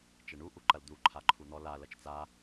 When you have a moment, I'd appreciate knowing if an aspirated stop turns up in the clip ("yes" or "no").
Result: yes